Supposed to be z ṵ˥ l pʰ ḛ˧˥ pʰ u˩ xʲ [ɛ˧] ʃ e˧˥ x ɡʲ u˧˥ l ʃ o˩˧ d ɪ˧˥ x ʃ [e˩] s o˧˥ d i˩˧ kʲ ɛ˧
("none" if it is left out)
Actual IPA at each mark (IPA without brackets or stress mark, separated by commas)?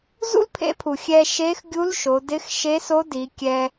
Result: ɛ˧, e˧˥